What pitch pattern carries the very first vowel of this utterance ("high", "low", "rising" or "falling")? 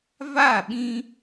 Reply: falling